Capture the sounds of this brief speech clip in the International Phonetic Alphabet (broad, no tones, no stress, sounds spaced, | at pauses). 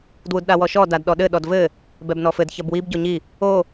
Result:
d w u d ɗ a w ɔ ʃ ɔ d a d ɗ ɔ ɗ ɘ ɗ ɔ d v ɘ | b ɛ b n ɔ f ɘ d ç ɐ b w i b ɟ o ɲ i | o